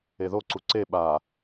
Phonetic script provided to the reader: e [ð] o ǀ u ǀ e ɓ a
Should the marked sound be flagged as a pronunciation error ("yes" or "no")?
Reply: no